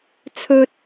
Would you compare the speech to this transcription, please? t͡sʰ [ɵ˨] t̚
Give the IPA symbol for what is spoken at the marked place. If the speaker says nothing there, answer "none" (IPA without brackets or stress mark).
ɵ˥